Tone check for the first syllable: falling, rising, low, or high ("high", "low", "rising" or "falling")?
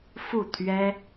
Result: falling